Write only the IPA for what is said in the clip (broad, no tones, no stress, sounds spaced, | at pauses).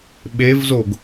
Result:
ɓ e v z o ɡ